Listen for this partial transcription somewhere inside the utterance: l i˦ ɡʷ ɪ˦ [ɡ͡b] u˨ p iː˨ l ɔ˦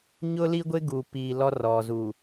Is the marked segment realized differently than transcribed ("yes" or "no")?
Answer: yes